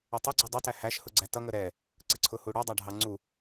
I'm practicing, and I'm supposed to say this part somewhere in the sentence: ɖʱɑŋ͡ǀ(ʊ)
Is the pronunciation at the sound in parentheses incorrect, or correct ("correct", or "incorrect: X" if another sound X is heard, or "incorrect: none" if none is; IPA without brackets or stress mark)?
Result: incorrect: u